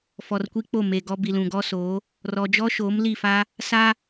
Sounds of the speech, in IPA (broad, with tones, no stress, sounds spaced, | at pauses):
f ɔ˨ r kʷ i˦ k͡p o˦˨ m e˨ ɡ ɔ˦ b i˨ l ũ˨ ɡ ɔ˦ s oː˨˦ | r ɔ˨ d͡ʒ ɔ˦ ʃ oː˨˦ m l i˦˨ f a˦ | s a˦